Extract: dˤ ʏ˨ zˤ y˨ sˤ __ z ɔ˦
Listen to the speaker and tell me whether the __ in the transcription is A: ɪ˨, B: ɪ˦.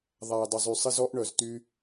B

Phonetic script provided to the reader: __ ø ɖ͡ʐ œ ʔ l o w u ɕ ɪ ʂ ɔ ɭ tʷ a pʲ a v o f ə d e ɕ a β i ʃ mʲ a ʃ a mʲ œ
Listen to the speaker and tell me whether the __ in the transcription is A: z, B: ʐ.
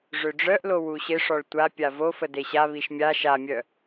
B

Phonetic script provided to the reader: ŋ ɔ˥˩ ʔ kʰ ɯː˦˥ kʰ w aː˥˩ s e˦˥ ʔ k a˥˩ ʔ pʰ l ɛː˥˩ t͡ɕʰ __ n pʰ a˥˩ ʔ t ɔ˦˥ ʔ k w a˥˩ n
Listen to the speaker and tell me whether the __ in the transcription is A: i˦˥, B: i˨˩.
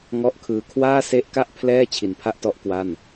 B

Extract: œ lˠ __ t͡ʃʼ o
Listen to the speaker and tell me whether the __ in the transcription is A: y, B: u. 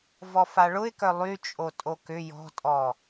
A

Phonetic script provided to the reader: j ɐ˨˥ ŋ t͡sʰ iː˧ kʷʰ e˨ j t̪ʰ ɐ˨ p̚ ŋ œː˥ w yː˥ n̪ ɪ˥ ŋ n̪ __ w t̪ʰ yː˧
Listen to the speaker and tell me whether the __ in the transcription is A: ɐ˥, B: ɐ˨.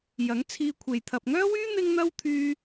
A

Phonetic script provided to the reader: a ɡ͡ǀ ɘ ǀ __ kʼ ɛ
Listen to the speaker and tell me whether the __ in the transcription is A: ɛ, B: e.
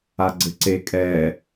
B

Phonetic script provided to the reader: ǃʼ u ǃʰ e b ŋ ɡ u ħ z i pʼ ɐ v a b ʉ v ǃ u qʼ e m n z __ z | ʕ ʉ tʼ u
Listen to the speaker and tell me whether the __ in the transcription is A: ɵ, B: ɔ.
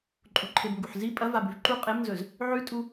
A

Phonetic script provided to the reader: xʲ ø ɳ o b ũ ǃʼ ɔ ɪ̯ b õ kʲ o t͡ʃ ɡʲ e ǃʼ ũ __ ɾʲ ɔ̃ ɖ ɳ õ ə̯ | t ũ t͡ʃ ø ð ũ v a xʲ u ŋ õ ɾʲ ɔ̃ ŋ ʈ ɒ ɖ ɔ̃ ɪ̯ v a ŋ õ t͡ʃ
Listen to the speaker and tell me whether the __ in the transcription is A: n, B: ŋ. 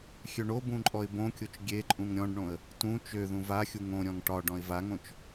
B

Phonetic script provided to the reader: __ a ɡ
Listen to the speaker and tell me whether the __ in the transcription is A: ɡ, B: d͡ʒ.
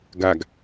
A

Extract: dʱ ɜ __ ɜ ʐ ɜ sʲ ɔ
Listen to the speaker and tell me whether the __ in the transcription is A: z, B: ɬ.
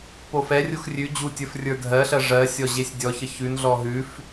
B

